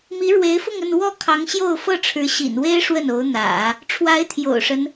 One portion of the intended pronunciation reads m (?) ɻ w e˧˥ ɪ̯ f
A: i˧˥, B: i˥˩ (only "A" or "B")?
A